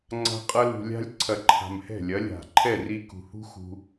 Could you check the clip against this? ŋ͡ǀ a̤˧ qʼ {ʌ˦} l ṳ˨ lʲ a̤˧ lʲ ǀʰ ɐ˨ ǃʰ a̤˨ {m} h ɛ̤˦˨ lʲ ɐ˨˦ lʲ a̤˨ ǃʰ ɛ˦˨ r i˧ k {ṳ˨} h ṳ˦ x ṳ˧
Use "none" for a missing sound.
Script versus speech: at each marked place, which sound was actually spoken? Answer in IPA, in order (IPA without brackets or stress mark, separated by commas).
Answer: ʌ˧, m, ṳ˨